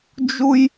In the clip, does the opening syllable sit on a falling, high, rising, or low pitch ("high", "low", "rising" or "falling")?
high